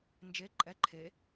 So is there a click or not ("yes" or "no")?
yes